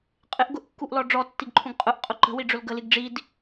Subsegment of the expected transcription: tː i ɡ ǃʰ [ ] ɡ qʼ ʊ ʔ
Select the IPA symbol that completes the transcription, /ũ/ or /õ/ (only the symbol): ũ